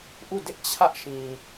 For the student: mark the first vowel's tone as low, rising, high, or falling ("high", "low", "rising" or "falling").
falling